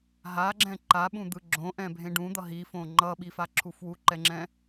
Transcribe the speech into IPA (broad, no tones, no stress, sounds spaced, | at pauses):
ɦ a ɡ͡ǁ ɛ̃ ǃ a ɓ ũ d̪ ɯ ɡ͡ǁ õ ʔ ɛ̃ bʱ ẽ ɖ ũ d̪ ʌ ɦ i f õ ŋ͡ǃ ʌ ɓ i f a ǁʰ u f w u ǃ ɛ ŋ͡ǁ ɛ̃